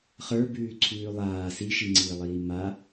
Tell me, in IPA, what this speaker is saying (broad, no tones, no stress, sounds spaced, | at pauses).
χ ə˞ b ʉː ǀʰ ʉː lˠ aː s i ʃ i ŋ͡ǀ iː lˠ iː m a